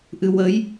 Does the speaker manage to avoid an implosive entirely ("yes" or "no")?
yes